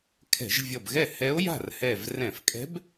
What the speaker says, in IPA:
kʰɛ̤˧˩˧ʒvʲʌ˧˩bɣɛ˥˩ hɛ˧˥o̯ja̤˥˩rhɛ˧˩v rɛ̃˧˩˧fkʼɛ̤˧˥b

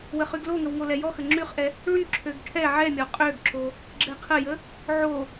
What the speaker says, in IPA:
wəχyɡloŋəw ŋolɛjɔxə ŋ͡ǁyχʔɛ | ɭyǁʰøɡ ʈʰɛ ʕɛmʲɔ qʼøɡǁo | ɡ͡ǁɛqʰəjə | ʕo

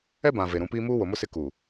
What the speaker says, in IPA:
ɛ˦bã˨ ve˨ɾũ˨˦piː˦ muː˦wo˨mʊ˦ sɪ˦ ku˨

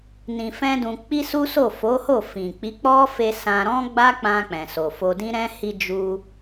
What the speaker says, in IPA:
nĩ˧fɛ̃˦dũ˧ k͡pi˦su˦so˦˨ fo˨˦ho˦˨ fĩ˨ k͡pi˨˦k͡pɔ˦fe˧ sã˧ɾɔ̃˦ɡ͡ba˦k͡pã˧ k͡pɛ̃˨so˨fo˧ dĩ˦ɾɛ̃˦ hi˧d͡ʒu˧

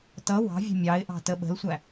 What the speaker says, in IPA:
tʌ wɑ̤vʲə̤ mʲɑɪ̯ʔɑ̤ təɓə̤lsʷæ

